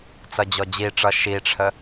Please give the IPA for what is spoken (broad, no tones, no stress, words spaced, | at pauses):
t͡sʌd͡ʑɔd͡ʑiʈ͡ʂʌ ʃiʈ͡ʂʰə